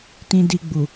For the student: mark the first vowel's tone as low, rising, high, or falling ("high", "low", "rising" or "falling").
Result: low